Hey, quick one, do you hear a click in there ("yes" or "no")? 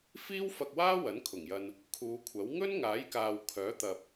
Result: no